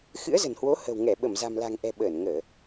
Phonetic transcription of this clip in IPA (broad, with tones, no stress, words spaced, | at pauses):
xɨ̰˧˥ə̯zə̤˨˩nhwo˨˦ hə̤˨˩wŋɛ˧˩ɓə˧˩mza̤˨˩m la̤˨˩ŋʔɛ̤˨˩ ɓəː˧˩nŋəː˧˩˨